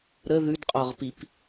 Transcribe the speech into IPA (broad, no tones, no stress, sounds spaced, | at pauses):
ɾ ə ð ʉ d qʼ ɔ ʁ p i p